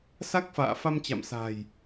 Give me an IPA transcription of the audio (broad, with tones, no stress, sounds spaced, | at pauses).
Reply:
s a˦˥ k̚ f a̰ː˧˨ f a˧ m t͡ɕ a̰˧˨ m s a̤˨˩ j